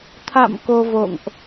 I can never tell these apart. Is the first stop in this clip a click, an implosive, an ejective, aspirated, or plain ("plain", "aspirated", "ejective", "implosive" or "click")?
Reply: aspirated